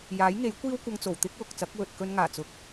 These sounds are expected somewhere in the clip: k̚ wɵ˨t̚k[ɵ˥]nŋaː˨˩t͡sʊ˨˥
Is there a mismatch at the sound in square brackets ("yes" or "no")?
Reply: no